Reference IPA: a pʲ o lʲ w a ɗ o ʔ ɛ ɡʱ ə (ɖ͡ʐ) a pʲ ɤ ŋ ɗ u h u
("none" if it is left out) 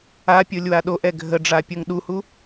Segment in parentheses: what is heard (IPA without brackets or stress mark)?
ɖ͡ʐ